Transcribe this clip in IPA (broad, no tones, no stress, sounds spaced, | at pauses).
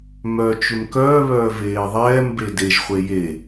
m œ t͡ʃ ʏ m k œː β œː v eː ðˤ ɛː m b e d e ʒ χʷ e j e